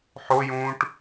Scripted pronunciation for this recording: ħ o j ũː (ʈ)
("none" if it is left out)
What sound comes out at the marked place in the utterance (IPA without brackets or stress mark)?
ʈ